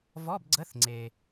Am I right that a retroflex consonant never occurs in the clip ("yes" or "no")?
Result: yes